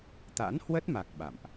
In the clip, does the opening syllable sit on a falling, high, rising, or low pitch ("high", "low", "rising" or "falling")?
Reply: rising